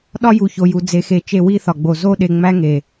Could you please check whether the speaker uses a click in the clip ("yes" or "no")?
no